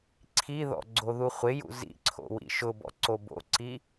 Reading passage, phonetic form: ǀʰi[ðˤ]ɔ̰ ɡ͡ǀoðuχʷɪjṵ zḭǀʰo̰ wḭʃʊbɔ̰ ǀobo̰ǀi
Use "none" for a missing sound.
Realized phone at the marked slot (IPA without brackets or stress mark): ð